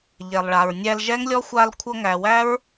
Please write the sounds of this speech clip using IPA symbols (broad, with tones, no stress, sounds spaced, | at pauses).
ʎ ɛ˨ lˠ ɭ a˨ ɹ nʲ æ˧ l ʒ ɛ˦ ŋ lʲ ɔ˦ xʷ a˧ l kʷʰ ɤ˧ ŋ æ˨ w æ˦ ɹ